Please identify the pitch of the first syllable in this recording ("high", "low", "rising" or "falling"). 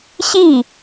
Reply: falling